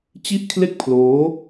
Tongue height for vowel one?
high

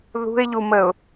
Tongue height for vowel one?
high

